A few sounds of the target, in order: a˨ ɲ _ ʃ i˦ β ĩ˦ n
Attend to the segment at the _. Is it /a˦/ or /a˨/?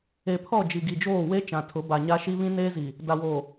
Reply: a˦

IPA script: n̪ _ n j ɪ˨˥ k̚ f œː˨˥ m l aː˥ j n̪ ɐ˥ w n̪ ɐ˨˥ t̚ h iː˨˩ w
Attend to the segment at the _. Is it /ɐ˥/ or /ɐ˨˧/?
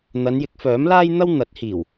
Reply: ɐ˨˧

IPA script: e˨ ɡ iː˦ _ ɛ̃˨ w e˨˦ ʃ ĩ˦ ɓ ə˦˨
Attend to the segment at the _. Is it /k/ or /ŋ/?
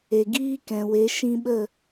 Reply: k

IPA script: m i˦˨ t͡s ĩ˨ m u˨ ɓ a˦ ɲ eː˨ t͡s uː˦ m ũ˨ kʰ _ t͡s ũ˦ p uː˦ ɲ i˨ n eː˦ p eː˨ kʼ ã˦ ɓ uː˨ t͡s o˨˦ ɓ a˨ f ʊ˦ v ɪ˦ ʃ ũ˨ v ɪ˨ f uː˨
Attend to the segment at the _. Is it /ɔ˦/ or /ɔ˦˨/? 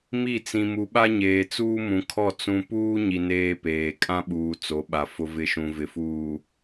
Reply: ɔ˦˨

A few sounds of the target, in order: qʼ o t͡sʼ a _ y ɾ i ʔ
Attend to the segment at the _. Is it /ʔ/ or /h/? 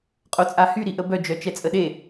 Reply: h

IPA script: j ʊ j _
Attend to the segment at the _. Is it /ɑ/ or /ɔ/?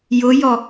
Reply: ɔ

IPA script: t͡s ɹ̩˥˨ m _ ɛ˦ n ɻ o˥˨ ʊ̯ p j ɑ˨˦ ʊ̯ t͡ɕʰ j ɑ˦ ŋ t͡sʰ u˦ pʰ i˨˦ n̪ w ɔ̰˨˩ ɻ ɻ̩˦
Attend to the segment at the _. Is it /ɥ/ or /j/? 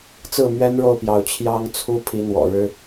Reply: ɥ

